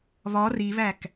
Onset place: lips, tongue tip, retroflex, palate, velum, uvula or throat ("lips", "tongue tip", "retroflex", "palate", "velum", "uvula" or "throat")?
lips